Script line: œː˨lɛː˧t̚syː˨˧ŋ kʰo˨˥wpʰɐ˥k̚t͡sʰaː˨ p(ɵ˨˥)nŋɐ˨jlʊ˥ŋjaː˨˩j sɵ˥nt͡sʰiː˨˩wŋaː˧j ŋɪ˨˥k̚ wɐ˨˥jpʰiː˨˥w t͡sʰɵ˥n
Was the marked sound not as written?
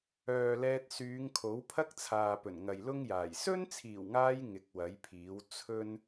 yes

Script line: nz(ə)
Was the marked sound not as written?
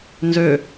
yes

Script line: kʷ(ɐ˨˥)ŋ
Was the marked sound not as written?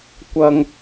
yes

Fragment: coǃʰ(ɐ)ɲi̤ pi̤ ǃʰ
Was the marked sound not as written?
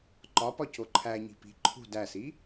yes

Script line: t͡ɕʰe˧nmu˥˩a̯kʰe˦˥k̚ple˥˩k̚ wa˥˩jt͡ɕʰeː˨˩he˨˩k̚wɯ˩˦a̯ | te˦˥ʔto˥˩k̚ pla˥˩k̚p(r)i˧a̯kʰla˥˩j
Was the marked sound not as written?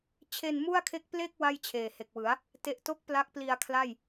yes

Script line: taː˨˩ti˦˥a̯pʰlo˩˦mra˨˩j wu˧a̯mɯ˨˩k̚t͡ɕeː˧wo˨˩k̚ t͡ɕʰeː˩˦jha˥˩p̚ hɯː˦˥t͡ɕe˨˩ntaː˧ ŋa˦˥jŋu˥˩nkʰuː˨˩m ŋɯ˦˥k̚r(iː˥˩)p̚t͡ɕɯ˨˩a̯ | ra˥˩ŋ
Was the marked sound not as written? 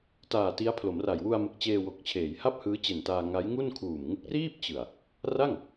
no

